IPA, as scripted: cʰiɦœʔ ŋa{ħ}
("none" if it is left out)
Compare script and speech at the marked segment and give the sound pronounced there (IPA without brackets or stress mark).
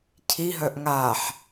ħ